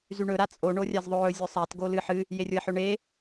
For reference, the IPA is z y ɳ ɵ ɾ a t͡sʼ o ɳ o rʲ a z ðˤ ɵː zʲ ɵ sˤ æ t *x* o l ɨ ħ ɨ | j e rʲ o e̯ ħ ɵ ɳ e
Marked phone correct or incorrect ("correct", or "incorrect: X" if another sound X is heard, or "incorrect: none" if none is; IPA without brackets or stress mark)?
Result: incorrect: ɡ